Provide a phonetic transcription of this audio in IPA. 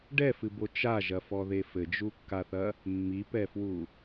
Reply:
ɖ ɛ f ɨ b o t͡ʃ a ʒ ɐ f ɔ ð e f ɘ d͡ʒ u kː a θ ɐ | mː i p ɛ f w u

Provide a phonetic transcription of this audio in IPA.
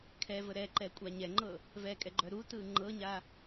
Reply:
kʰ ɛ v ə ɾ ɛ ǃ ɛ kʷʼ a ɲ ɛ ŋ͡ǃ ɤ | v ɛ kʼ ɛ ɡ͡ǃ œ ɾ u t ɯ ŋ͡ǃ ɤ ɲ a

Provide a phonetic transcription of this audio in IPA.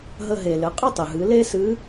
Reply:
ɦ ə˧ ɦ e˩ l ɘ˩˧ qʼ ɘ˥ tˤ ɘ˩ ɦ ɨ˩˧ l e˥ s ɨ˧˥

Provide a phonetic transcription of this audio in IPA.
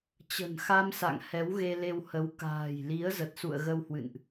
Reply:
t͡ɕ ə̤˨˩ n x a˧ m s a̰˧˨ ŋ h ɛ˨˦ w ɣ e˧ l e˧ w h ə˨˦ w k a̤ː˨˩ j l i˨˦ ə̯ z ə˨˩ t̚ s ṵ˧˨ ə̯ ɣ ə˧ w h w ɨ̰˧˨ n ʔ

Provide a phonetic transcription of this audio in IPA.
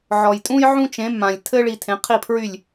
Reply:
ʕ ɔ˩ j tʼ ũ˥ j ʕ ũ˥ t͡ʃ ẽ˩˥ m ã˩ lʲ tʰ ɘ˥ ɭ i˧ tʰ ẽ˩˥ qʰ i˥˩ pʰ ɹ y˥˩ lʲ

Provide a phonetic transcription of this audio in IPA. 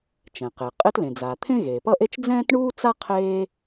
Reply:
t͡ʃ ɛ̃˩ q e˩ qʼ e˥ t l ẽ˩ d͡z a˩ t̪ʰ ẽ˥ ɣ eː˩ p ʌ˥ ʔ e˥ t͡ʃ d͡z ɛ̃ː˥ t ɳ uː˥ t͡s a˥ qʰ eː˥

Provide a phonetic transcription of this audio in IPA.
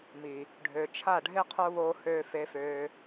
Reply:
m i˨ | ɖʱ ø˨ t͡ʃʰ a˦˨ ɖʱ e˦ qʰ o˦ β oː˦ h øː˦ f e˧ f øː˧

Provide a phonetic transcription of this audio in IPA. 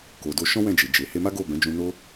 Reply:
k o˨ d o˧ ʃ ɔ̃˦ w ɛ̃˦˨ d͡ʒ e˨ d͡ʒ e˨ h e˧ m a˦ ɡ o˦˨ b ɛ̃˨˦ d͡ʒ ũ˧ n o˦

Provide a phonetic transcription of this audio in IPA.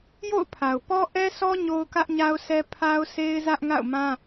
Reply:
j o̰˦˨ ʊ̯ pʰ a˨ ʊ̯ p ɔ˦ ʔ ɛ˦ sʰ ɔ˦ ɲ o˦ ʊ̯ k ä˦ ʔ ɲ a˦ ʊ̯ s ɛ˦ pʰ a˦ ʊ̯ sʰ e˦ ɪ̯ z ä˦ ʔ ŋ a̰˦˨ ʊ̯ m ã˦

